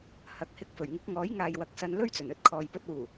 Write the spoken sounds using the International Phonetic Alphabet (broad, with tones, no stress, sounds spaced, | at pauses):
h ɐ˨˥ k̚ h ɪ˧ k̚ f ɵ˨˩ ɥ ŋ ɪ˨˥ k̚ ŋ ɔː˨˥ j ŋ aː˨ j w ɐ˨ k̚ s ɐ˧ n l ɵ˥ ɥ t͡s ɵ˨˩ n ɵ˧ t̚ kʰ ɔː˨ j p ɵ˧ t̚ w uː˨˩